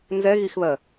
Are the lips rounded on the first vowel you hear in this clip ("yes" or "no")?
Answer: no